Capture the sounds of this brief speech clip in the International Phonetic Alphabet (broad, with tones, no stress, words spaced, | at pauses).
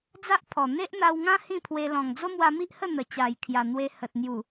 d͡za˦ʔpʰɔ˨˩ n̪e˦ʔn̪a˧wŋã˦ hĩ˥˧pʰwe˧ lɔ̃˨˩ŋd͡zo˦mwa˧mi˦ʔ hə˥˧n̪ə˨˩t͡ɕa˨˩j kʰja˨˩n̪we˧hə˨t̚ n̪ju˨˩